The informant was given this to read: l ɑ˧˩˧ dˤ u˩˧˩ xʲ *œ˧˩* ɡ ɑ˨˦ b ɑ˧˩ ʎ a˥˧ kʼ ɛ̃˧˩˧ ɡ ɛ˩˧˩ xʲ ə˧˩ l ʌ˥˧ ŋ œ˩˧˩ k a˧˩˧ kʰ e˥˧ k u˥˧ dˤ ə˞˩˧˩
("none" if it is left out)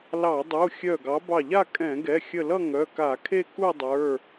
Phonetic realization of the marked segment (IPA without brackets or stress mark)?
œ˧˩